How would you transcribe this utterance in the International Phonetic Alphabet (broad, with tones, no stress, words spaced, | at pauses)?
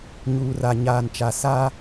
ɲuː˨ra˨ ɲaː˨nt͡ʃa˨ sa˦